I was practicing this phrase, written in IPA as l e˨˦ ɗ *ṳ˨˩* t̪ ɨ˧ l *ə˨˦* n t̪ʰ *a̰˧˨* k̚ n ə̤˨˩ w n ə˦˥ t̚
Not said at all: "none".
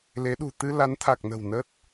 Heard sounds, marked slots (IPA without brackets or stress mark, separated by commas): ṳ˨˩, a˨˦, a˨˩